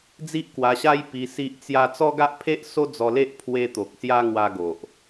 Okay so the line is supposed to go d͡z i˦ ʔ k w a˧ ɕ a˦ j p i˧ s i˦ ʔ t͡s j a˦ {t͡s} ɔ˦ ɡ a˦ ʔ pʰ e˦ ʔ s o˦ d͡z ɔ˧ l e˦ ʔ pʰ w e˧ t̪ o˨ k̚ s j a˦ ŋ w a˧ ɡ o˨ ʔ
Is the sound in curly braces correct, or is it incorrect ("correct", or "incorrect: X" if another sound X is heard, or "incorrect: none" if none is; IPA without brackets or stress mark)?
correct